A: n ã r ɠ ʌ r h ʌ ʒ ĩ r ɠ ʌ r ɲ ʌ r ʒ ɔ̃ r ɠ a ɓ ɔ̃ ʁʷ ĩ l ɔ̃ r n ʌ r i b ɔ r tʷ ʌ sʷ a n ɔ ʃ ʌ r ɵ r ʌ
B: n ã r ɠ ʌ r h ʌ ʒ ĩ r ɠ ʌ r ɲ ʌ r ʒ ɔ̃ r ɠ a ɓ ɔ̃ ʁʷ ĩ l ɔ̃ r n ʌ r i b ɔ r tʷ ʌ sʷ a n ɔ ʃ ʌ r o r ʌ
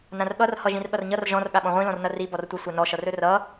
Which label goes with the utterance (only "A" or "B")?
A